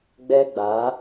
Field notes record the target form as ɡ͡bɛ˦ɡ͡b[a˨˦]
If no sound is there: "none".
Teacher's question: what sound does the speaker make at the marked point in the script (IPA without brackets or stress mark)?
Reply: a˨˦